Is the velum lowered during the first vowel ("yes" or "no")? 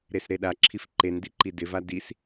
no